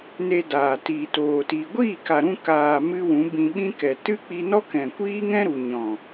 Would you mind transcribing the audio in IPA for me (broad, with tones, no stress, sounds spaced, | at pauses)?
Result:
n e˧ d aː˨ t iː˨ t oː˨ t i˨ ɡʷ iː˦˨ k a˨ ɾ ũ˧ k aː˨ m ɨ˦ w ũ˨˦ b ĩ˧ ɓ ĩ˦ k ɛ˨ t ɨ˦ k͡p i˧ n ɔ˦ k ɛ̃˨ kʷ iː˦ ŋ ɛ̃˦ ɾ u˨ ɲ ɔ̃˨